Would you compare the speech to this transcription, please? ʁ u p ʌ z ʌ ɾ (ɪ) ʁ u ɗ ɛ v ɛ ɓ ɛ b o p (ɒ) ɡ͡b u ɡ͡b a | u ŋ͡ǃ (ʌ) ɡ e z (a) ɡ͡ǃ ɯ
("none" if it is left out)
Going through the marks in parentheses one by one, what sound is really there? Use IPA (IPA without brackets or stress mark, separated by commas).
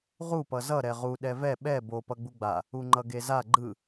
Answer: ɛ, ʌ, ʌ, a